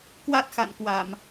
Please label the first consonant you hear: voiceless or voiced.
voiceless